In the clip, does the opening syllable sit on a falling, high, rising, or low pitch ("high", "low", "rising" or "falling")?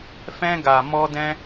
high